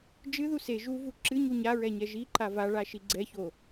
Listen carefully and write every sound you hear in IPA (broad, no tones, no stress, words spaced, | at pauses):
d͡ʒɨðu se ʒuvu ǁɨɲu ɲaɹɛ ɲɛʒiǃa vaɭa ʃiɡ͡ǀɛço